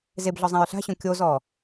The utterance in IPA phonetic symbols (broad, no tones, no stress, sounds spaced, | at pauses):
z e b ɮ ɔ zˤ ã ɹ ɬ a̤ ɕ õ kʲ o z ɔː